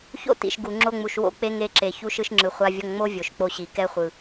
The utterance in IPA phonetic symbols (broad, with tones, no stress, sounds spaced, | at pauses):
ç o̰˦ t ḭ˨ ʃ ɡ u˨ ŋ͡ǁ o˧ ŋ͡m u˨ ʃ w o̰˦ k͡p e˦ ŋ e˧ ǁ e˨ ç u˧ ʃ ɯ˧ ʃ ŋ͡ǁ ɯ˨ χʷ a˧ vʲ ʌ˧ ŋ ŋ͡m o˦ vʲ o˨ ʃ k͡p o˧ ɕ i˨ k ɛ˧ χʷ ɯ˨